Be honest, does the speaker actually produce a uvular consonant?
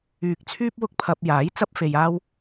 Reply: no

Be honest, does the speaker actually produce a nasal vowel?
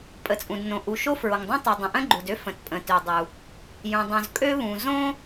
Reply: yes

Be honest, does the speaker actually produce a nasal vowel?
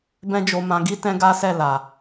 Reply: yes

